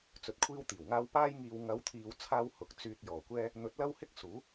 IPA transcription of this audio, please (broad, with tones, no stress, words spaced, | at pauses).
t͡sɵ˧t̚kʷʰiː˥wt̪iː˨˩wŋaː˥w paː˧jŋiː˨wŋɐ˨˧wt̪ʰiː˨w t͡sʰaː˥whʊ˨˥k̚ t͡syː˧t̚jɔː˨˩kʷɛː˥ | n̪ɵ˨˥t̚lɐ˥whɪ˥k̚ suː˨˥